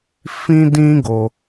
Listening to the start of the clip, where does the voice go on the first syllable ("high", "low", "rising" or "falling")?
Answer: high